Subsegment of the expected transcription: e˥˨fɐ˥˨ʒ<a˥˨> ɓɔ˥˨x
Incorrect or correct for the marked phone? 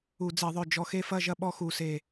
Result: incorrect: ɐ˥˨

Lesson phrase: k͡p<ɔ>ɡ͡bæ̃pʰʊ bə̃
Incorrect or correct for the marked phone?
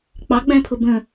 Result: incorrect: ɑ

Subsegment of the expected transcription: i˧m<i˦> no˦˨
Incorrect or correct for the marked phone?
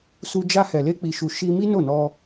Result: correct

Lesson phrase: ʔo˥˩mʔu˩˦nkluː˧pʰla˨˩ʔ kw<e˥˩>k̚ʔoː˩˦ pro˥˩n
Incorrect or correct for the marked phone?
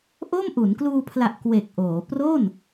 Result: incorrect: e˨˩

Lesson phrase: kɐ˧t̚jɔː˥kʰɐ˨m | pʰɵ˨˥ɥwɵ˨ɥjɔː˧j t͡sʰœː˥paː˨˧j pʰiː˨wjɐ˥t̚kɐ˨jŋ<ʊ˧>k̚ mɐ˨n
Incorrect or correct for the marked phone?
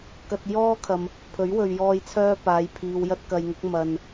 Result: incorrect: ʊ˨˥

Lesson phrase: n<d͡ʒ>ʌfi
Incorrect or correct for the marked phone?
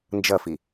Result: correct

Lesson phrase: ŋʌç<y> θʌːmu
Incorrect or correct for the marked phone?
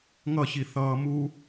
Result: incorrect: i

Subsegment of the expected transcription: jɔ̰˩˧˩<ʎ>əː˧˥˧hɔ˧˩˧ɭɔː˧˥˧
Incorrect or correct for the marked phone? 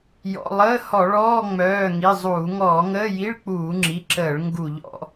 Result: incorrect: lˠ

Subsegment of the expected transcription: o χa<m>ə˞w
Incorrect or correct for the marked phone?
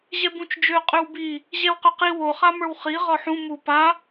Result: correct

